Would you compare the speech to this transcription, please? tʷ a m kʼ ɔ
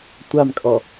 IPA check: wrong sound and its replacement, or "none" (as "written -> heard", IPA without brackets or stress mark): none